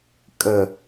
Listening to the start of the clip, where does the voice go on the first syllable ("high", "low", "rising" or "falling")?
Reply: low